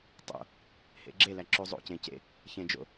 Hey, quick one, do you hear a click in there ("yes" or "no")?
yes